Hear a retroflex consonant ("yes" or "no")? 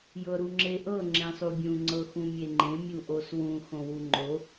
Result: no